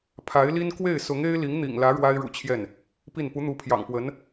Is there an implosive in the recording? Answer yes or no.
no